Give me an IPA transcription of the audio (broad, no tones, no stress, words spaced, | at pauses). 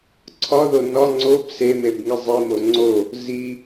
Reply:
ǀʰɒðo nɒ ŋ͡ǀob semebŋi zˤimo ŋ͡ǀo | zi